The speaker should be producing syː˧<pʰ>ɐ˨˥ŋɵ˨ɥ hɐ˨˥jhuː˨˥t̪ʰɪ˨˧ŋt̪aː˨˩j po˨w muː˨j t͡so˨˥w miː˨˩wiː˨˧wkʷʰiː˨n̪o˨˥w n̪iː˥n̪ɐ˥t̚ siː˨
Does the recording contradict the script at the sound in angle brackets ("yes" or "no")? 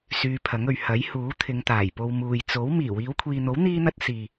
no